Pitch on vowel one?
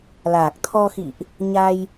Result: low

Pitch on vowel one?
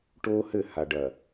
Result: high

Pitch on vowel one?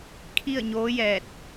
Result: falling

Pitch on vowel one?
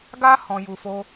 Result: high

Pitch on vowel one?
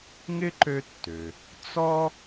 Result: high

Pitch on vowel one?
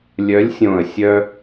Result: rising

